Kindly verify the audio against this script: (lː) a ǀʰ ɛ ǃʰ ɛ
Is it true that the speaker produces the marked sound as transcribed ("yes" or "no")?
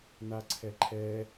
no